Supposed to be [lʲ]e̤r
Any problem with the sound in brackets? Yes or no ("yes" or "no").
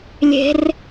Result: no